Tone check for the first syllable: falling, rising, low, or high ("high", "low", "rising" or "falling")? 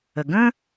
low